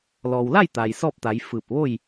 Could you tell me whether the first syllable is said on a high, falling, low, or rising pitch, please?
low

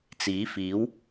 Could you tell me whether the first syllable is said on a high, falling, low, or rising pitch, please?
rising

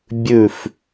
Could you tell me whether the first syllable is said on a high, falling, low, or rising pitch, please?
low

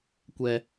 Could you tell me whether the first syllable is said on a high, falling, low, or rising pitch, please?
high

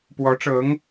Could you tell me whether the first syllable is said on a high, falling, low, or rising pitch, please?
rising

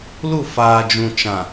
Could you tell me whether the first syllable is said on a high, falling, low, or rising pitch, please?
falling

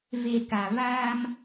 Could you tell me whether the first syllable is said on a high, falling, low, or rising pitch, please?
low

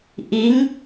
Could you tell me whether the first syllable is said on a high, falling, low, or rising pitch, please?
rising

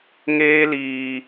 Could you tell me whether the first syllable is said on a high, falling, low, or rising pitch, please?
high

